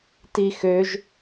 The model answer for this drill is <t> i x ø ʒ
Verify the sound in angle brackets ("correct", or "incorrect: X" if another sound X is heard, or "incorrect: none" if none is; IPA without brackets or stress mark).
correct